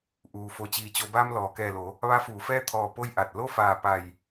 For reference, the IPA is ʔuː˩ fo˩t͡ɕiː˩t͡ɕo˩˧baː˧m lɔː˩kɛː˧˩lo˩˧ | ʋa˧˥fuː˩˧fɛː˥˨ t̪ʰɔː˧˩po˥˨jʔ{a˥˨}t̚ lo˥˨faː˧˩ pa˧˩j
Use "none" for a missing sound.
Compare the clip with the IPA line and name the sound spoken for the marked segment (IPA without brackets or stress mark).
a˧˩